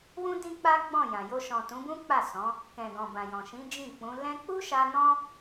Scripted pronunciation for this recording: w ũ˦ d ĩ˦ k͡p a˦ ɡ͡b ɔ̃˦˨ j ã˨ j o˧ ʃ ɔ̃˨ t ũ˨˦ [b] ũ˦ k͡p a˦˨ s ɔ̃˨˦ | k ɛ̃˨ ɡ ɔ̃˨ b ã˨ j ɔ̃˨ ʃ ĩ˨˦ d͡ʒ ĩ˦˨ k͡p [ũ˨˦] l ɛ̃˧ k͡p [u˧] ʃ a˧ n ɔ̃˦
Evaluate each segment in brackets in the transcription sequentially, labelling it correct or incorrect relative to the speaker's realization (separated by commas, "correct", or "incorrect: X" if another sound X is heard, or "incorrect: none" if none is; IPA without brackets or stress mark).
correct, correct, incorrect: u˦